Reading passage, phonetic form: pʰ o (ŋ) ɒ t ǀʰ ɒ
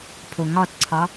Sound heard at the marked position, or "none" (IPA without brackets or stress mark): ŋ